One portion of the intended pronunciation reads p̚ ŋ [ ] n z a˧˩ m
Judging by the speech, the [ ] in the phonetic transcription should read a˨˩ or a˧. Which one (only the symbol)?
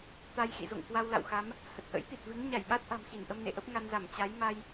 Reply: a˧